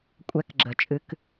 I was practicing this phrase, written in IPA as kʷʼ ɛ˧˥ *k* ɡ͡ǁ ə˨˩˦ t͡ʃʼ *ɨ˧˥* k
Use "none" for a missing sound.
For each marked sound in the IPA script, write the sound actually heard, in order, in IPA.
k, ɨ˧˥

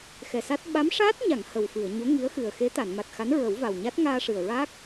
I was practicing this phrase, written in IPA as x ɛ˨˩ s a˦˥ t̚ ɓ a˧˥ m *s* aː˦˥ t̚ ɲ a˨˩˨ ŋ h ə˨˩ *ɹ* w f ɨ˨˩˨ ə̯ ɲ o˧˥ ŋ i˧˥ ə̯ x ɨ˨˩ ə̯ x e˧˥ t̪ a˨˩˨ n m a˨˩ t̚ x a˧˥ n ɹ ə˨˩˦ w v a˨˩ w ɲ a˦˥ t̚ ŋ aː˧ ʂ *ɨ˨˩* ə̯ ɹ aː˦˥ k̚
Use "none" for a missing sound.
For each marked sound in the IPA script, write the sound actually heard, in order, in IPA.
ʂ, none, ɨ˨˩

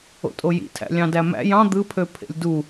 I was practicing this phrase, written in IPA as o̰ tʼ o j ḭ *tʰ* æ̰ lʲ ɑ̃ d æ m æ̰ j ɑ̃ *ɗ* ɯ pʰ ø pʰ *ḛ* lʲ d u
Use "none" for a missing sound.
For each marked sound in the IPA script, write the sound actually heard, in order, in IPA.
tʰ, d̪, ḛ

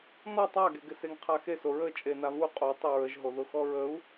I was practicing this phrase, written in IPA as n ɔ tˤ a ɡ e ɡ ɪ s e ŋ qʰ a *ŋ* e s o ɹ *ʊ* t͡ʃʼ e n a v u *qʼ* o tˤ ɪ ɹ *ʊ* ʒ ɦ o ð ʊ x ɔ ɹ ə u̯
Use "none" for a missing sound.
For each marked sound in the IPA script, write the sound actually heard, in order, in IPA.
x, ə, qʼ, ə

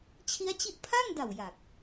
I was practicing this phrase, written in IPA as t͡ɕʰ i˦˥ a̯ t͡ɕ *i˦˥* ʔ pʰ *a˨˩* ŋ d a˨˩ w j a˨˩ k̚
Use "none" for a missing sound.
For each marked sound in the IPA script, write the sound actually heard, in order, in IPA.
i˦˥, a˥˩

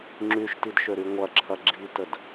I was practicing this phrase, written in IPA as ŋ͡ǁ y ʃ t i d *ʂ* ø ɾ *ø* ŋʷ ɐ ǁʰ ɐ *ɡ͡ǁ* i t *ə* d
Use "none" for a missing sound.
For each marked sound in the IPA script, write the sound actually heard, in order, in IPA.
ʃ, y, ɡ͡ǁ, ə

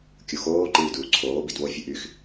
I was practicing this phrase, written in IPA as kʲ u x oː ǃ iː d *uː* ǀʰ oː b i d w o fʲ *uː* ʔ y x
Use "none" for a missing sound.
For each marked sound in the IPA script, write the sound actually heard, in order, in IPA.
uː, u

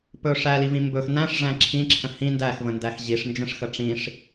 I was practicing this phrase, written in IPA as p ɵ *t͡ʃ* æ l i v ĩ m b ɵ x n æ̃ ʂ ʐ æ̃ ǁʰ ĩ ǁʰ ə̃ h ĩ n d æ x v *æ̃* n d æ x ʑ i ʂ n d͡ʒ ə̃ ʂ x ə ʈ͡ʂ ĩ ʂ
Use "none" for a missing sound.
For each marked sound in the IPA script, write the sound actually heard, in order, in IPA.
ʂ, ə̃

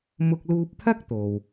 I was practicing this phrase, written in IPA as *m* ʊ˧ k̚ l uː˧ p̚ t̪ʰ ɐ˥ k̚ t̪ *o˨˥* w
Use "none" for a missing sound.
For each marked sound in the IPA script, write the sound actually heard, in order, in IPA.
m, o˨

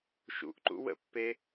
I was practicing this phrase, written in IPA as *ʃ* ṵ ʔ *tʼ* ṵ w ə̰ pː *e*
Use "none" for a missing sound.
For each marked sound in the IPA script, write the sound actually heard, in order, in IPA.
ʃ, ǃ, e

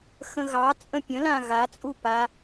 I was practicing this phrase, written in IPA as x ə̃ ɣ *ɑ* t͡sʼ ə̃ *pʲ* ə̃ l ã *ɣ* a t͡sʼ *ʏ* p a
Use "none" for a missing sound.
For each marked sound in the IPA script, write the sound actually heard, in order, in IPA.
ɑ, pʲ, ɣ, u

